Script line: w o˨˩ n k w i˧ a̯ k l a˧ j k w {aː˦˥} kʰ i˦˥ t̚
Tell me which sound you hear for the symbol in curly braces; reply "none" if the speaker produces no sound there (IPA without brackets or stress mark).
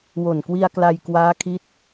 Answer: aː˦˥